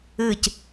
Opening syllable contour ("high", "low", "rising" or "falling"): falling